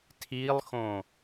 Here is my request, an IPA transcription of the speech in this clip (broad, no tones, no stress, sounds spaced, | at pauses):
tʰ i lˠ x õ